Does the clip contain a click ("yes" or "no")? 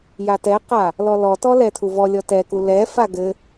no